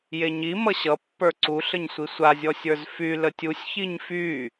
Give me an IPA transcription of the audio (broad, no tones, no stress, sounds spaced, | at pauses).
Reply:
j e ɲ i m ʌ ɕ ʌ pː ə˞ ǀ u ɬ ə ɲ sʷ i sʷ a zʲ ɔ sʲ ə˞ z f y l ə tʲ u sʲ ç i ɲ f y